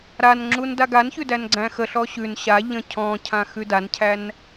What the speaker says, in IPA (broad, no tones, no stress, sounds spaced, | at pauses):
ɾ a n ŋ͡ǁ u n d a ɡ a n ç ʉ d æ n ɡ͡ǀ æ̃ x ə ɬ ɔ ɕ ʉ n ɕ a ʎ ə̃ cʰ ɔ̃ cʰ ã x ʉ d a n cʰ æ n